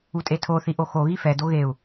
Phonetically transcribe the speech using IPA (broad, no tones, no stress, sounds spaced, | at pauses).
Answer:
u tʼ e tʰ o θ i ʔ o x o ɣ i f ɛ d o ɣ e u̯